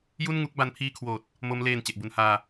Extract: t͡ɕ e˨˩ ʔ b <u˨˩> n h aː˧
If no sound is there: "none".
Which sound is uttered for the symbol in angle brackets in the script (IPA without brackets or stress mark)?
u˧